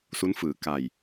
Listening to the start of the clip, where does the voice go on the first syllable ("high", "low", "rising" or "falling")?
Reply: rising